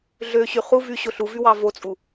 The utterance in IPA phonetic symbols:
ɮ ø ɕ y χ u v y ɕ o ɬ u v y w ɑ v o t͡sʼ u

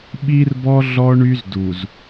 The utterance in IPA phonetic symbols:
ɓ i˦ r b ɔ˦ ɮ ɔ˦ ɳ y˦ z d u˨ z

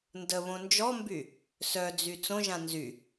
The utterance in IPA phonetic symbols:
n d ə β õ n d͡ʒ ɔ m b y | s œ d͡z y t͡s õ ʒ ã n z y

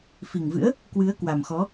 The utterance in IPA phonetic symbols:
f i˨˩ ŋ v ɨ̰˧˥ ə̯ | k w ɨ˨˦ ə̯ k w a˨˩ m x ɔ˨˦

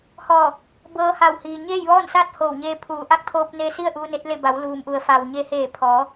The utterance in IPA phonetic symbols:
h ɔː˧˩ | b ɤː˧ h a˧˩ w h iː˩ ɲ eː˥˨ j ʋ ɔː˥˨ n s aː˥˨ t̚ h oː˧˩ w ɲ eː˧ pʰ uː˩˧ ʔ a˧˥ k̚ t̪ʰ oː˧ p̚ n e˧ s i˥˨ ə̯ ʔ uː˧ n e˧˥ t̚ l e˥˨ b a˩˧ w l uː˩ m ʔ u˩ ə̯ f a˩ w ɲ e˧ h eː˧˩ pʰ ɔː˩˧

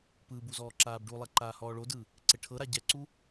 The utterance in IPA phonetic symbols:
p ɯ b u z ɔː ǁ aː b ɖ u lˠ ɛ ǃ aː h ɔː ɭ o d ɯ | ǀ e ʈʰ ɤ ɾ a ɟ ɛ ǀ u

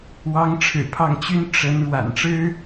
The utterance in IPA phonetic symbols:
w ɑ˧˥ ŋ ʈ͡ʂʰ ɻ̩˨˩ pʰ ɑ˥˩ ŋ t͡ɕ y˥ n ʈ͡ʂ ə˧˥ n ɻ w a̰˨˩ n ʈ͡ʂ ɻ̩˥

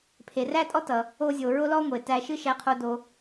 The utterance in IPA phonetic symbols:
pʰ e˩ r æ˥ tʼ ɔ˥ t ʌ˩ | o˧ zʲ o˩ ɹ o˥ l ɔ˥ ŋʷ e˩ t æ˧ ʃ ɨ˥ ʃ æ˧ qʰ o˧ d o˧

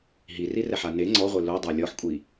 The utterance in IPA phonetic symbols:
ɦ i r i r ɛ ħ a n e ŋ͡ǀ ɔ ʁʷ e l o dˤ a lʲ ɔ ħ kʷʼ i

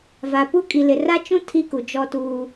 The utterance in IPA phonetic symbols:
v a˨ p u˦ kʼ i˨ l ɪ˨ r a˦ t͡ʃ ũ˦ tʰ i˦ k u˨ d͡ʒ ɔ˦ t uː˦

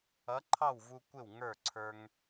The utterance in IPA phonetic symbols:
ʌ˨˥ ǃʰ ɑ˥˩ w v u˧ kʷ ɪ˥˩ w ŋ ə˞˥˩ ǀʰ ə˞˧ ŋ

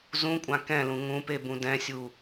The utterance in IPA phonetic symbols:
z ũ kʷʼ ã k ɛ̃ l ũ ŋ ũ p e b ũ d ɛ̃ sʲ u

